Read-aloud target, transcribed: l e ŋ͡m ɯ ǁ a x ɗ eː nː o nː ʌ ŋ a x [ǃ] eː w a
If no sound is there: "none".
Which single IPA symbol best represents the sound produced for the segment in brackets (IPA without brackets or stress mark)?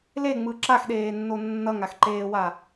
ǃ